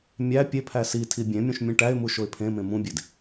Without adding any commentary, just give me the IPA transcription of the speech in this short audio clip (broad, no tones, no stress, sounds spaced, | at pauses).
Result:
mʲ æ pʲ e pʰ æ s i tʰ i bʲ ẽ mʲ ũ ʃ mʲ ũ ʈ æ ɪ̯ m u ʃ o ɪ̯ pʰ ẽ m ẽ m ũ bʲ e d